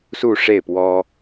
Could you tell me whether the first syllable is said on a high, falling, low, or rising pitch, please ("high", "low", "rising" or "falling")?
falling